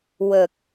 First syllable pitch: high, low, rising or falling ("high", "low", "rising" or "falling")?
low